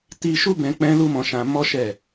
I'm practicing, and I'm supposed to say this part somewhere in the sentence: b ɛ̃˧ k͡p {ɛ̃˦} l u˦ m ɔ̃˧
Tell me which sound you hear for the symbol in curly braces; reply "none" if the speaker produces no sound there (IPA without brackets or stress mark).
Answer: ɛ̃˦